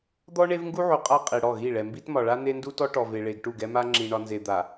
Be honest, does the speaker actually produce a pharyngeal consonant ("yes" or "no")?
yes